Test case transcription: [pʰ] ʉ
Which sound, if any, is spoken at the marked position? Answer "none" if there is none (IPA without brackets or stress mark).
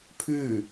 pʰ